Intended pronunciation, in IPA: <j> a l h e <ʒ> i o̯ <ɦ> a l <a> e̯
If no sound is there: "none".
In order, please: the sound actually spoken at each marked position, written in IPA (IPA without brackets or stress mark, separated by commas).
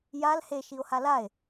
j, ʃ, h, a